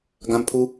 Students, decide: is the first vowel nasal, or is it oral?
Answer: nasal